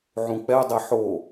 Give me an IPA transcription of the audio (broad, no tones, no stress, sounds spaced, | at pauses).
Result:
ʕ ũ k͡p ɛ dˤ e ħ o